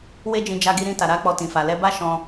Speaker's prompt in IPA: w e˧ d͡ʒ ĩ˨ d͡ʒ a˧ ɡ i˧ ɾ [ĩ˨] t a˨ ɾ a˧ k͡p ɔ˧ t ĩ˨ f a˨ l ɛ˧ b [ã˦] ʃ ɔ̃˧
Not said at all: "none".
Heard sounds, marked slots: ĩ˧, a˦

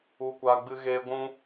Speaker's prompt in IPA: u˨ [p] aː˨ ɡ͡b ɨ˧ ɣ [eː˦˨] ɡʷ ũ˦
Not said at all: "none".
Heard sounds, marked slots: kʷ, eː˧

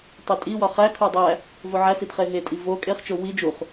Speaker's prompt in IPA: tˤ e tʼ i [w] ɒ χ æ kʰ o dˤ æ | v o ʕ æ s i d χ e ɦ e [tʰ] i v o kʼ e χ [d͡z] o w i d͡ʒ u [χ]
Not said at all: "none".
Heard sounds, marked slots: w, tʼ, t͡ʃ, χ

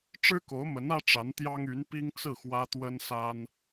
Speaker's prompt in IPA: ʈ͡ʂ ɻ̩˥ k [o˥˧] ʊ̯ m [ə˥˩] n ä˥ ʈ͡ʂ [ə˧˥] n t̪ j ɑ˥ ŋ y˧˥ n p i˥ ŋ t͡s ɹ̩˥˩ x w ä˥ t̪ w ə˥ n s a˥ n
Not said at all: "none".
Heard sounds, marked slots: o˧˥, ə˧˥, a˧˥

